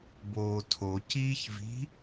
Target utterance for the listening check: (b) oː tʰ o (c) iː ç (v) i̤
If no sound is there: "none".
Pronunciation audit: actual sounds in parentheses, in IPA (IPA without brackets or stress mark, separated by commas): b, c, v